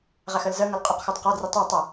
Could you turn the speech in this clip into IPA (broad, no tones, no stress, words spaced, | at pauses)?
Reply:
ʁæxɜlzɜŋʌl qʼʊqxɒd qɒdri tˤɜ tˤʌ